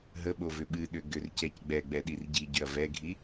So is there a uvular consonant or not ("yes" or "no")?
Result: no